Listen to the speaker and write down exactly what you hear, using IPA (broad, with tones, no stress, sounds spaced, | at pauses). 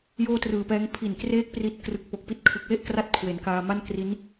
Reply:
j oː˥˩ t r ɯː˨˩ p ɛː˦˥ ŋ pʰ i˨˩ n k r eː˦˥ k̚ p r i˦˥ t̚ k r ɯ˨˩ k̚ p o˨˩ k̚ p i˦˥ t̚ kʰ ɯ˨˩ k̚ w e˥˩ ʔ k r a˦˥ t̚ kʰ w e˩˦ n k aː˧ m a˥˩ n k r i˦˥ n